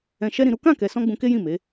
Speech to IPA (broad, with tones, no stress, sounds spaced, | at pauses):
ɛ̃˧ ʃ ɛ˦ ɾ ĩ˧ ɾ u˦ k ã˦˨ k ɛ˨ s ɔ̃˧ ɡ͡b ũ˧ k e˦ j ĩ˦˨ m e˨˦